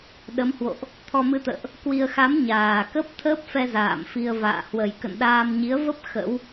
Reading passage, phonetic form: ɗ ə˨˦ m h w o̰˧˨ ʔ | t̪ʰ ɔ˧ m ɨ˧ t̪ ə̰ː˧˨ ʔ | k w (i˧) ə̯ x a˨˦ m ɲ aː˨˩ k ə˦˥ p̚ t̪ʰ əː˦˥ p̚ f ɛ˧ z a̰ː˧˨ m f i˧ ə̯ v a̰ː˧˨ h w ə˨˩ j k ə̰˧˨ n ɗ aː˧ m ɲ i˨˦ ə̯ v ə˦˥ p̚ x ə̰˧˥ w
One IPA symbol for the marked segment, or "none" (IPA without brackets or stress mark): i˧